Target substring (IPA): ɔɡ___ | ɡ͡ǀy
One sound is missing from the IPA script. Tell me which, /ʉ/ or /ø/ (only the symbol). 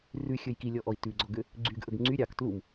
ø